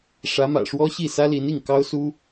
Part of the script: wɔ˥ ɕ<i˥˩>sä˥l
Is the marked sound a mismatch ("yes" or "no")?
no